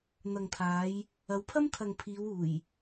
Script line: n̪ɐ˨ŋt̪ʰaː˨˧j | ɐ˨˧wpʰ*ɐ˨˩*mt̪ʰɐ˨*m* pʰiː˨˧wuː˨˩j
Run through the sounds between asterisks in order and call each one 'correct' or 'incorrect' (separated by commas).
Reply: incorrect, incorrect